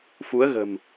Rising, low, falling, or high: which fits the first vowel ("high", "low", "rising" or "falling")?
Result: rising